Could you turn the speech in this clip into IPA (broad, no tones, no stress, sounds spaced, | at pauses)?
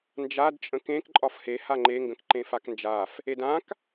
n d͡ʒ a d t͡ʃʼ ə̃ k ẽ k ǃʼ ɒ f h e h a ŋ͡ǃ e ŋ ɡ ə̃ k ǃ ẽ f a k n d͡ʒ a f | e d ã k